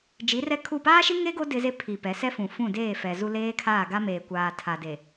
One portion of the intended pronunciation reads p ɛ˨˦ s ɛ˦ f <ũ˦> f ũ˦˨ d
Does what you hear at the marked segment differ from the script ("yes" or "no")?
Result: yes